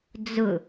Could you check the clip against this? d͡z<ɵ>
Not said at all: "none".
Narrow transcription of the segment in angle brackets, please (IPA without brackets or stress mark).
ʊ